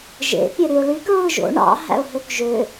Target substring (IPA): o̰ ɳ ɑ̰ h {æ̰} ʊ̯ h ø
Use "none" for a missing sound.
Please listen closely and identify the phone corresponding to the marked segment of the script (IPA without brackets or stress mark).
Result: æ̰